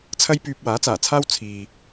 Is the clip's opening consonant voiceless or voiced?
voiceless